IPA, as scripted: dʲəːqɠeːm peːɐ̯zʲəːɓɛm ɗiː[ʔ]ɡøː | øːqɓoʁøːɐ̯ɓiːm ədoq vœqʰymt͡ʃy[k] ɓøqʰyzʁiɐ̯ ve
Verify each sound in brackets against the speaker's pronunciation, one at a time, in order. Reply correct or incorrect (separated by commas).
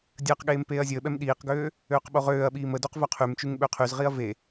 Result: incorrect, incorrect